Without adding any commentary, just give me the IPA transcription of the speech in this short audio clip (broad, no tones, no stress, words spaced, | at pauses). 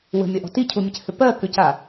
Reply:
wə̤mʲɐʔɔ̤ ticʰumʲɘchʏ pɜkʏca